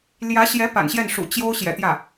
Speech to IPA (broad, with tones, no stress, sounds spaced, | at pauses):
l j ä˧˥ ɕ j ɛ˧˥ p a̰˨˩ n ɕ j ɛ˥˩ n ʂ ṵ˨˩ t͡ɕ j o˥ ʊ̯ ɕ j ɛ̰˨˩ t̪ j ä˥˩